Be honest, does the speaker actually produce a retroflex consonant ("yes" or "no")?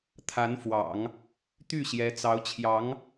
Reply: no